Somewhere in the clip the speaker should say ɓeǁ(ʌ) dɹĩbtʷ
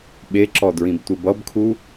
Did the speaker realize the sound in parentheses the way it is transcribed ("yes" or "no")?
no